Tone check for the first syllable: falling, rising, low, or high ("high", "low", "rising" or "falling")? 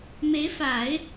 rising